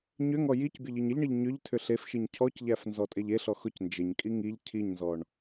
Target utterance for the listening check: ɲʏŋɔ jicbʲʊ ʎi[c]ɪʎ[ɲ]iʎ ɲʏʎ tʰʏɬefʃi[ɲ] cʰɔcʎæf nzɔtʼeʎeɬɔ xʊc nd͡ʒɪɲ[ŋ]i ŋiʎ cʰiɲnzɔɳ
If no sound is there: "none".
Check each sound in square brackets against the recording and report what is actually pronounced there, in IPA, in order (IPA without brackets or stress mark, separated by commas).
ɲ, ɳ, ɲ, kʼ